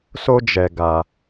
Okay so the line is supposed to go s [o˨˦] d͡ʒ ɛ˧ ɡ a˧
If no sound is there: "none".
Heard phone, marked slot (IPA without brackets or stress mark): o˦